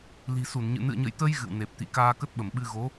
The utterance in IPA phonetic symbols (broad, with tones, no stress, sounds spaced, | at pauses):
l i̤˨˩ s u˧˩ n ɲ ɨ̰˧˨ n ɨ̰˧˨ ə̯ ɲ ə̰˧˨ j t̪ ə˧ j ɣ ɨ̰˧˨ w n e˨˩ p̚ t̪ ḭ˧˨ k aː˧ k ə˦˥ t̚ ɓ ə˧˩ m ɓ ɨ˧ ɣ o˨˦